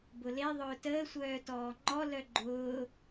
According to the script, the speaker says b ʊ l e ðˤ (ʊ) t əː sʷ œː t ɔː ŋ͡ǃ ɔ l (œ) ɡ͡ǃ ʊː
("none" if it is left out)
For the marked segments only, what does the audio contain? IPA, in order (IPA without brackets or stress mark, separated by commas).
ʊː, œ